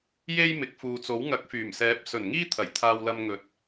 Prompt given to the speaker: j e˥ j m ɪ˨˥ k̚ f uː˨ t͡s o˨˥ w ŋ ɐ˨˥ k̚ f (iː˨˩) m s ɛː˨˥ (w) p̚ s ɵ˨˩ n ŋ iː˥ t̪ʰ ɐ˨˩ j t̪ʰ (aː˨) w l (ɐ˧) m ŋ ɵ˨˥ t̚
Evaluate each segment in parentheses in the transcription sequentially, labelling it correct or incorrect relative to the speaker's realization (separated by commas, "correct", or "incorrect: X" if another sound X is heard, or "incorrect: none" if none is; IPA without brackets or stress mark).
incorrect: yː˨˩, incorrect: none, correct, correct